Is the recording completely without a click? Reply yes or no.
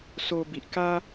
yes